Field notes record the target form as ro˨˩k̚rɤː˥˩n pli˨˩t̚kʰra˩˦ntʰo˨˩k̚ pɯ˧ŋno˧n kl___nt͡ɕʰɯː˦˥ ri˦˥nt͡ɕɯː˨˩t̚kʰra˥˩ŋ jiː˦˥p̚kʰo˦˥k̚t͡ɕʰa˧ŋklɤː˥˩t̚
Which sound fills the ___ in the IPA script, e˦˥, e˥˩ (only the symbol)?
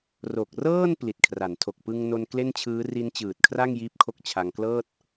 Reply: e˥˩